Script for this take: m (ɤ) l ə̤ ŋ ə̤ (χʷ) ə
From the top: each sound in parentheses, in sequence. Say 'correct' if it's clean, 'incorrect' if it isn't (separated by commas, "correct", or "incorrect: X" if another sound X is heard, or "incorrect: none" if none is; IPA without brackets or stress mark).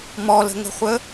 incorrect: ɔ, correct